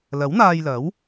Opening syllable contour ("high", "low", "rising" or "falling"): rising